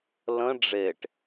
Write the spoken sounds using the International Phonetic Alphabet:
l ə̃ ɖ͡ʐ e ʈ

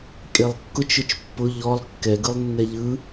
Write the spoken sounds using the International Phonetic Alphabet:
kʼ e lˠ kː ʊ t͡ʃ ʊ t͡ʃ pː ʊ ʎ ɔ lˠ kː ɛ ɡ ɯ lˠ nː ɛ ʎ ɯ

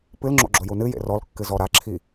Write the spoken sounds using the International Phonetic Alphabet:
p ɨ l ŋ͡ǁ o̰ ɡ͡ǁ o j u n ɨ j ḛ r ɔ l kː ɨ z ɔ ɾ a ǁʰ i

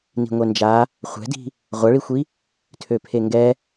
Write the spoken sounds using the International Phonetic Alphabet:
n i̤ ŋʷ ɛ n d͡ʒ a | χʷ ɛ̤ d i̤ | ʁʷ ɐ ɭ i xʷ i | tʰ ø pʰ e ŋ ɡ ɛ

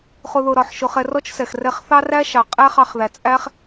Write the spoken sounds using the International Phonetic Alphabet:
χ ʊ˧ ð ʊ˧ ɾ ɒ˧ ħ ʃ ʊ˧ χ ɛ˧ r ɔ˦ t͡ʃ s ɛ˨ x r ɛ˧ χ θ ɑ˦ r æ˦ ʃ ɑ˨ qʼ æ˦ χ ɑ˧ χ ð æ˨ t͡sʼ æ˦ χ

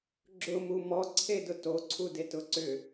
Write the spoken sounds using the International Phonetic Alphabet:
ɡ͡ǁ ʊ m u m ɔ ǀʰ e d ʊ t o ǀʰ u d e t ʊ ǀ ʏ

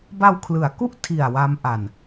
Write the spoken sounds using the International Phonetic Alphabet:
b a˧ w kʰ l ɯ˩˦ a̯ k u˥˩ ʔ tʰ i˨˩ a̯ w a˦˥ m ʔ a˨˩ n

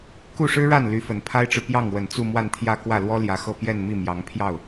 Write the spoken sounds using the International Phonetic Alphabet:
k u˥˩ ʂ ɻ̩˥ ɻ a˥˩ n l y˧˥ f ə˨˩ n pʰ a˥ ɪ̯ ʈ͡ʂ ɻ̩˨ p j ɑ˥˩ ŋ w ə˨˩ n t͡s u˥˧ m w a˥˧ n t̪ʰ j ä˥˧ k w ä˥˩ l w ɔ˥ l j ä˧˥ x ɤ˥˧ p j ɛ˥˧ n m i˥˩ m j ɑ˧˥ ŋ pʰ j ɑ˥˩ ʊ̯

